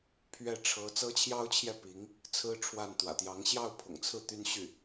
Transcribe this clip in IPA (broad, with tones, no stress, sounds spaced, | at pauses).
pʰ ɥ ɛ˥˩ ʈ͡ʂʰ ɤ˧˥ t͡s ɤ˥ t͡ɕʰ j ɑ˥ ʊ̯ t͡ɕʰ j ɛ˥˩ p i˧˥ ŋ | t͡sʰ ɹ̩˥ ʈ͡ʂʰ w a˥˩ n t̪ w ä̰˨˩ t̪ j ɑ˧˥ ŋ ɕ j ɑ˥˩ ʊ̯ pʰ ʊ̰˨˩ ŋ t͡sʰ ɹ̩˥˩ t̪ y˥ n ɕ y˥˩